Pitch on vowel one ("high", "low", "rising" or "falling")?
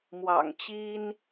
low